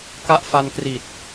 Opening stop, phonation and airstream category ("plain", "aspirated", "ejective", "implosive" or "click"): plain